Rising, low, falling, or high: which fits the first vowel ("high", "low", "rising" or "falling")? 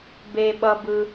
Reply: high